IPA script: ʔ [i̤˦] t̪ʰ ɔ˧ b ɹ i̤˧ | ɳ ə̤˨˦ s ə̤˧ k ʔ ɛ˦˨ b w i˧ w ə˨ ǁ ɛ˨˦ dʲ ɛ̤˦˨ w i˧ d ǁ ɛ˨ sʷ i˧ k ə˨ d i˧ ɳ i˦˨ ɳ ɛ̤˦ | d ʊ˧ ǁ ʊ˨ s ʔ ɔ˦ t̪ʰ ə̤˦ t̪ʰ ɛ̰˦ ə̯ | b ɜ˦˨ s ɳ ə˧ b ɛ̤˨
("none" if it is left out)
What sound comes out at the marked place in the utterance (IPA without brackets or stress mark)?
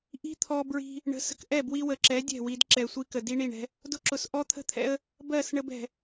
i̤˦